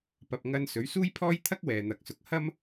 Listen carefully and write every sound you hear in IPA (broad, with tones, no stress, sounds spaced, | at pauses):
p ɐ˨ p̚ ŋ ɐ˧ n s ɵ˨˥ ɥ s uː˥ j pʰ ɔː˥ j t̪ʰ ɐ˥ k̚ w ɛː˨ n̪ ɐ˨˥ k̚ s ʊ˨˥ k̚ h ɐ˥ m